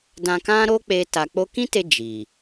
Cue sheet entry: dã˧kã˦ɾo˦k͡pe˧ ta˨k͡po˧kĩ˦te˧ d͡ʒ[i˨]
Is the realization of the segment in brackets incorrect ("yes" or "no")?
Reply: no